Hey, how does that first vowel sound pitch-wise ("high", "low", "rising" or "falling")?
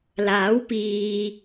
rising